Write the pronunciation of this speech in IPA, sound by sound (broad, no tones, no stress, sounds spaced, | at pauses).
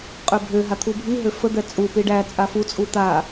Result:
qʼ ø bʱ ø ɦ a t̪ʰ u bʱ i ɦ ø f ə d̪ ɛ t͡sʼ u p i ɖ æ t͡sʼ a f u t͡sʼ u t̪ a